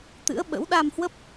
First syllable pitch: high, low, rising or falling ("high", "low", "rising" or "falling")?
rising